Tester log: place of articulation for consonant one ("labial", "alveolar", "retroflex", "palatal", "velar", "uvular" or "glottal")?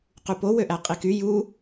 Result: uvular